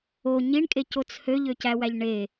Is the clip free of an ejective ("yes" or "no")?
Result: no